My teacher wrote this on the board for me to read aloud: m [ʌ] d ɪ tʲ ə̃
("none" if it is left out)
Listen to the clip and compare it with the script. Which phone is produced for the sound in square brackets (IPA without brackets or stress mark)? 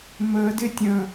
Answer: ə